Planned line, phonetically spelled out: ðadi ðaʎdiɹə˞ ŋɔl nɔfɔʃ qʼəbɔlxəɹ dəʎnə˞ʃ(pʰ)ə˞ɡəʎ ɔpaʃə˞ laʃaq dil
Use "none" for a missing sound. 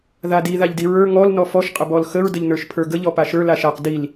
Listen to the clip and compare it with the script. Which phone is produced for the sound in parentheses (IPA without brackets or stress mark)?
pʰ